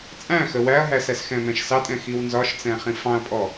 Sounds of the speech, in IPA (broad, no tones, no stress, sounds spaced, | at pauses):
t͡sʼ æ̃ x ə w æ ɐ̯ ɦ æ s æ s x ɛ̃ m ɛ̃ ʃ s ɑ tʼ ɛ̃ x i w n z ɒ ʃ t͡s ɛ̃ χ ĩ f ɑ̃ ɐ̯ pʼ ɔ